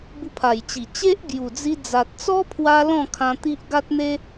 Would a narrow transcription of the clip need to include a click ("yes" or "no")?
no